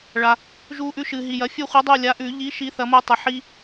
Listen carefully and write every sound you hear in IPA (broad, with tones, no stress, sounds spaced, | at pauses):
ɭ a˨ | ʒ u˨ ʔ ʉ˦ ʃ ɨ˨ ɦ i˨ j ɐ˨˥ fʲ ɨ˦ χʷ ɨ˨˥ dˤ u˦˨ lʲ a˨˥ ʔ ʉ˨˩˦ ʎ i˨˥ ʃ i˨˥ θ ɐ˨˥ m u˦˨ tˤ ɨ˨ ħ i˦